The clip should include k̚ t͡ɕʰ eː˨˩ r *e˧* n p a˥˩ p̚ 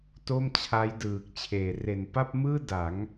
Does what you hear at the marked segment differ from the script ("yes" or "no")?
yes